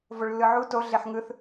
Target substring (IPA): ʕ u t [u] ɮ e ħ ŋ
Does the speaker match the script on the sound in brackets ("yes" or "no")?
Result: no